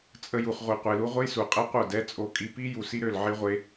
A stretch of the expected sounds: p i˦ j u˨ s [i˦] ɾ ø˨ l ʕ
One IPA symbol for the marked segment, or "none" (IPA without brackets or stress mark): i˦